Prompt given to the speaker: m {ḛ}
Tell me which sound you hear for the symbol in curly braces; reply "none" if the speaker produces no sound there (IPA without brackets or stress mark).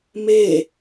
e